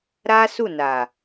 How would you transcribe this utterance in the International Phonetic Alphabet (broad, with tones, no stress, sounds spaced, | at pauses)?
ɾ a˦ s u˦˨ n a˨